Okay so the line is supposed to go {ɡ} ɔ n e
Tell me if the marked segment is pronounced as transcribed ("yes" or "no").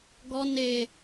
yes